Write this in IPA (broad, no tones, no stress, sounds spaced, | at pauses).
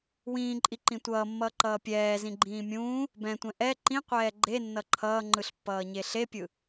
w ĩː ǃʼ i ǃ ĩ tʷ ʌː mː ʌː ǃ ʌː pʲ ɛː z ĩ ɡ͡ǃ ĩː mʲ ũː | b ɛ̃ tʷ ɛ̃ ʔ ɛ ǃ ĩ qʷ ɛː ɡ͡ǃ e nː ʌ ǃʰ ʌː ŋ͡ǃ ɯ ɬ pː ʌː ɲ e ɬ e pʲ ɯ